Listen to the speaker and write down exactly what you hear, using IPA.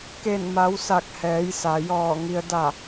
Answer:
k e˧˩ n m a˩˧ w s a˧˩ k̚ h ɛː˩˧ j s a˩ j ɔː˧˩ ŋ i˩ ə̯ d a˧˩

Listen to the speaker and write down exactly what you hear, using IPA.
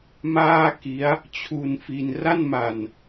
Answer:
m aː˥˩ k i˦˥ a̯ | t͡ɕʰ u˧ n f i˧ n r a˥˩ n m a˨˩ n

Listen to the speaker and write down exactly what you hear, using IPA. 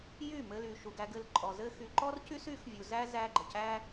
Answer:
j y˦˨ m ɘ˧ l y˨ ʃ u˨ ɡ æ˧ ɡ ɘ˧ l ǃʼ ɔ˨ z ɘ˧ x y˨ ǃ ɔ˦ r c y˦ s y˨˦ x vʲ u˨ z æ˦ z æ˦ ɡ͡ǃ ə˨ c æ˦

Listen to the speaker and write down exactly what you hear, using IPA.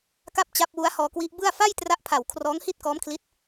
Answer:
k a˥˩ p̚ t͡ɕ a˦˥ p̚ w u˦˥ a̯ h ɔː˧ k w i˦˥ ʔ b ɯ˥˩ a̯ f a˥˩ j t r a˦˥ ʔ pʰ a˨˩ w kʰ r ɔː˦˥ ŋ h i˥˩ t̚ k ɔː˦˥ m kʰ l i˦˥ t̚

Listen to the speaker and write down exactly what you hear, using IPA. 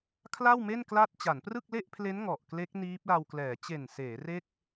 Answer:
kʰ l a˥˩ w m e˥˩ n k l a˥˩ t̚ t͡ɕ a˩˦ n p r ɯ˥˩ k̚ l e˥˩ ʔ pʰ l e˦˥ n ŋ ɔ˨˩ ʔ k l e˦˥ k̚ n iː˦˥ p̚ l a˧ w k l ɛː˩˦ t͡ɕ e˨˩ n s eː˩˦ r e˥˩ k̚

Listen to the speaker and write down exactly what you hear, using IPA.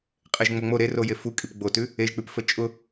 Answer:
qʼ e ʒ ŋ͡m o ŋ͡m o ɾ e r o j e f u kʼ i p ɡ͡b o t ʉ | e ʒ k͡p ʉ p f ə t͡ʃʼ ʊ

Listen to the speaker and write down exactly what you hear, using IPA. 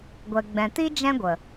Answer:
ɡʷ ɛ˨ ɡ͡b ɛ̃˨ t i˦ d͡ʒ ɛ̃˦ ɡʷ ə˨

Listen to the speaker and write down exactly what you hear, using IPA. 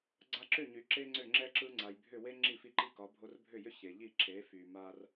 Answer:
ɡ͡ǀ a˧ ǁ ʏ˥˩ ɲ y˩ ǁ e˥ ŋ͡ǀ ʏ˥˩ ŋ͡ǁ ɛ˥ ǁ ɯ˧ ŋ͡ǀ a˩ j bʱ ʏ˥˩ w e˥ ŋ͡ǁ i˥˩ f i˥˩ ǃ i˥˩ k ɒ˩˥ bʱ o˧ r bʱ ʏ˥˩ j ʏ˥ ç e˩ ʎ i˥˩ ǁ e˩˥ f y˩ m a˧ r

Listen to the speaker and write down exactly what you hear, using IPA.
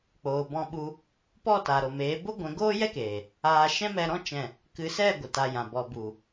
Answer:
k͡p oː˨ b ɔ̃˧ ɓ u˧ | p ɔ˦˨ t a˨ ɾ o˨ m eː˨˦ b o˦ ɡʷ ɛ̃˨˦ ɡ oː˦ j ɛ˦ k eː˨ | aː˧ ʃ ɛ̃˦ m ɛ˧ ɾ ɔ̃˦ t͡ʃ ɛ̃˦˨ | k ɨ˨˦ s ɛ˦˨ ɡʷ ɨ˨ t a˧ j ã˨ b ɔ˨ b u˨

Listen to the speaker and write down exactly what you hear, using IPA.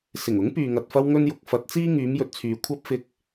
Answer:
s ɪ˨˩ ŋ ʊ˨˥ ŋ p yː˨ ŋ ɐ˨ t̚ f ɐ˥ w ŋ ɵ˥ n j ʊ˨˥ k̚ f ɐ˨˥ t̚ t͡s iː˥ ŋ yː˨˧ m j ɵ˨ t̚ t͡sʰ yː˨ kʷʰ ɐ˥ p̚ f ɪ˧ k̚

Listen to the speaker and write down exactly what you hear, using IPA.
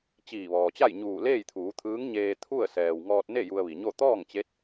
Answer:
t͡ɕ iː˧˩ ʋ ɔː˩ t͡ɕ a˥˨ j ɲ uː˧˩ l eː˥˨ j t̪ʰ uː˩˧ t̪ʰ ɯː˧˥ ŋ ɲ eː˧ t̪ʰ u˥˨ ə̯ s ɛː˩ w ŋ ɔː˧ t̚ n e˥˨ j u˧ ə̯ ʋ i˩ ɲ o˥˨ t̪ ɔː˥˨ ŋ t͡ɕ e˧˥ t̚

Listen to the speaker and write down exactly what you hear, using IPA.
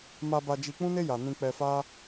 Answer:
m a˧ b a˧ d͡ʒ i˧ k͡p ũ˦ n e˦ j a˧ n ĩ˧ k͡p ɛ˧ f a˦

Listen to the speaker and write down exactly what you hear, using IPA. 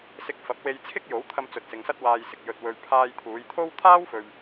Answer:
s ɪ˨ k̚ f ɐ˨˥ p̚ w e˧ j t͡sʰ ɪ˥ k̚ j o˨˥ w t̪ʰ ɐ˧ m t͡s ɵ˨ t̚ s ɪ˨ ŋ s ɐ˥ t̚ w aː˧ j s ɪ˨ k̚ j ɵ˧ t̚ w ɵ˧ ɥ pʰ aː˧ j t̪ʰ uː˨˧ j t̪ʰ o˥ w t̪ʰ aː˥ w f ɵ˧ ɥ

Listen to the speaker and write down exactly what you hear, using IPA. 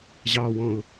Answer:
ʑ ɑ w ɔ̃ ʊ̯

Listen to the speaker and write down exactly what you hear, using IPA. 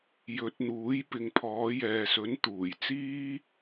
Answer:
j ɵ˨˥ t̚ n̪ uː˨˥ j p ɪ˨ ŋ pʰ ɔː˨˧ j ɛː˨ s ɵ˨˥ n t̪ uː˨˩ j t͡s iː˥

